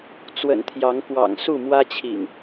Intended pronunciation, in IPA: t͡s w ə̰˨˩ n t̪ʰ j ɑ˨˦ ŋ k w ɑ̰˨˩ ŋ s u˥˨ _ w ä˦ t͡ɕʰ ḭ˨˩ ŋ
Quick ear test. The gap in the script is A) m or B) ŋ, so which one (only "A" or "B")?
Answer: A